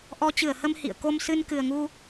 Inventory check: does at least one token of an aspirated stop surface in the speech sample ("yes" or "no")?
no